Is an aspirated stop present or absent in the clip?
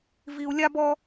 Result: absent